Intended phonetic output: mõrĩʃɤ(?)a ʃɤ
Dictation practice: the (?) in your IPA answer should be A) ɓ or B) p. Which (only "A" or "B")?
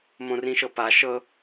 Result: B